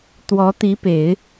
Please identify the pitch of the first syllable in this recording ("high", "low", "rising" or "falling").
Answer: rising